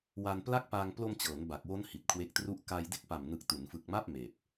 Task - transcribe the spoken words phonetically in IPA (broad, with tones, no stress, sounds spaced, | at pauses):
w a˧ n p l a˥˩ k̚ p aː˧ ŋ p l o˧ m t͡ɕ ɤː˩˦ n b a˨˩ k̚ w o˦˥ n h i˨˩ t̚ kʰ w e˦˥ k̚ t r u˥˩ ʔ k a˧ j d e˥˩ k̚ p a˨˩ m n ɯ˨˩ k̚ t u˩˦ n f ɯ˨˩ k̚ m a˥˩ p̚ m eː˨˩ p̚